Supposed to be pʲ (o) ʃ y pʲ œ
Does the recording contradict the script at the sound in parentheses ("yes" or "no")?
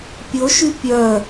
no